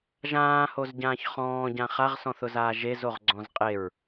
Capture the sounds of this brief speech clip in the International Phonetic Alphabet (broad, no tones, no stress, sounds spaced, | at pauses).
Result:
ʒ ãː h o z ɟ ãː ç χ ɔ̃ː ɟ ã χ a ʁ s ɔ̃ θ ʊ z aː ʒ e z o ʁ ɡ͡ǀ ɔ̃ z qʼ e ɹ